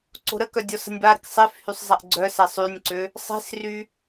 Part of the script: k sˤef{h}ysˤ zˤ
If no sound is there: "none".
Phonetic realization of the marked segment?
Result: h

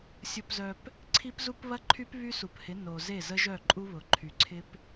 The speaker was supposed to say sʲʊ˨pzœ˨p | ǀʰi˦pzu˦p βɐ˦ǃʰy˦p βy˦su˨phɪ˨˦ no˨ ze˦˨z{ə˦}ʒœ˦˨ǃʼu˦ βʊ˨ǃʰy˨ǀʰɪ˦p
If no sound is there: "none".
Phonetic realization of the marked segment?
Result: ə˦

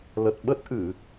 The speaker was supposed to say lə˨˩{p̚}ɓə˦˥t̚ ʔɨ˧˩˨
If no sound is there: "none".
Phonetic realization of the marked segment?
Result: t̚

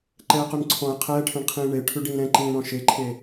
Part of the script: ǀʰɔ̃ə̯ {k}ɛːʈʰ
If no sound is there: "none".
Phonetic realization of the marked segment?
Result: qʰ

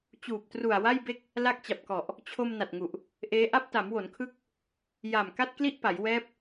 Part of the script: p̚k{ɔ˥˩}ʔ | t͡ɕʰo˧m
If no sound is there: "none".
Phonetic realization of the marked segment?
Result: ɔ˨˩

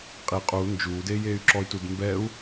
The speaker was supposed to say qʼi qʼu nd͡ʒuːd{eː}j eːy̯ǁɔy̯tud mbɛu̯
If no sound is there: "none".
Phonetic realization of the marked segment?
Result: eː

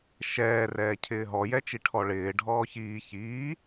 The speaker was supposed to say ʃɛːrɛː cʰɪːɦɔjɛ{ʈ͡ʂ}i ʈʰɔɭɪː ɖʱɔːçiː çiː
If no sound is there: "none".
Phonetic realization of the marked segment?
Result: t͡ʃ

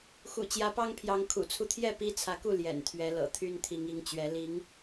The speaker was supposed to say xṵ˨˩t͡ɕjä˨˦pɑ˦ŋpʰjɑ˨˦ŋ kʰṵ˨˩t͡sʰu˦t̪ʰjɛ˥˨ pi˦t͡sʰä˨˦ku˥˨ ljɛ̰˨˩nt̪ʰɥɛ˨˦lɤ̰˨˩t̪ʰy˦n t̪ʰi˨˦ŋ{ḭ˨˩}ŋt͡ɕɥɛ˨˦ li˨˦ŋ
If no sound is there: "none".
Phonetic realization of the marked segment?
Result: i˨˦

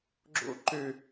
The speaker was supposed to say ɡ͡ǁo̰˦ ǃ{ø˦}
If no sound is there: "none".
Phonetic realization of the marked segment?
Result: ø˦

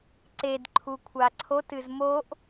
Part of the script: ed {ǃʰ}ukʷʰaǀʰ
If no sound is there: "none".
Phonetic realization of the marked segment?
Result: ǃʰ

